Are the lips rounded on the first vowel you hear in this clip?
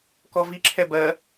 yes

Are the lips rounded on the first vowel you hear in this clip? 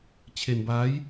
no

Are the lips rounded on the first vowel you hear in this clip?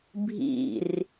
no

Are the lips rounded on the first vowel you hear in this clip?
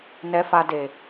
no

